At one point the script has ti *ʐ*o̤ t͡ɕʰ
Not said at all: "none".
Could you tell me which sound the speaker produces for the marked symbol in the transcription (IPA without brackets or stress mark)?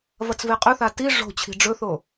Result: ʐ